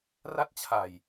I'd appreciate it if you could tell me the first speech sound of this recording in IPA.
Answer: r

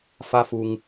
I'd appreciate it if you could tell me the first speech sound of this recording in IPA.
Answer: f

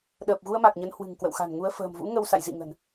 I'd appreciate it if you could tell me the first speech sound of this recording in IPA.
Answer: ɗ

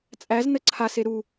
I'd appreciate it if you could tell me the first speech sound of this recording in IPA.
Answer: t͡sʼ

